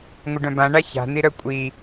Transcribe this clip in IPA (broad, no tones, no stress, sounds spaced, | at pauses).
ŋʷ ɪ ɖ œ̃ b ã ɳ a ç a̤ n̪ i ɾ œ kʷʼ i